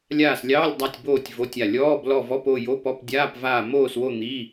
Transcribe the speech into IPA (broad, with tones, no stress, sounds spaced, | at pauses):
lʲ aː˦˨ s lʲ ɑː˧˥˧ lʲ dˤ a˦˨ tʲ b oː˦˨ tʲ v o˧˥˧ tʲ a˦˨ lʲ ɔː˧˥˧ b l ɔ˦˨ v ɔ˧˥˧ p o˦˨ j o˧˥˧ p ɔ˧˥˧ p dʲ aː˧˥˧ p v aː˦˨ m oː˦˨ s w o˦˨ n̪ i˧˥˧